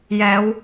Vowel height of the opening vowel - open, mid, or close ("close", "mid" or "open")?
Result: mid